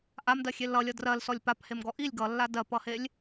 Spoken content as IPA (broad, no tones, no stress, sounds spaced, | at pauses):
ʔ a m d ɜ xʲ e l ʌ lʲ ʌ d r ɜ l s ɔ lʲ p a p h e m ɡ ɔ ʔ i lʲ ɡ ʌ lː a d ɜ p ʌ h e lʲ